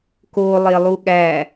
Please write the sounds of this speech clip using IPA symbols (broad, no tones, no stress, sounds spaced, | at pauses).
k o lˠ e lˠ u ɠ æ